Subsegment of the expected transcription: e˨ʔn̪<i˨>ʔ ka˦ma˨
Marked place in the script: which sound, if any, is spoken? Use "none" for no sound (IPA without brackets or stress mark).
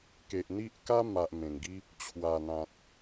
i˦